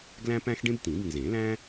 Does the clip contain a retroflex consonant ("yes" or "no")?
yes